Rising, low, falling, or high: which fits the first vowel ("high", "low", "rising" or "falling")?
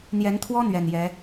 rising